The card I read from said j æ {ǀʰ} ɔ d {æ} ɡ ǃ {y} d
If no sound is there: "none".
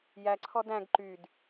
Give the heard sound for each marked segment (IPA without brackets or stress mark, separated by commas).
ǀʰ, æ̃, y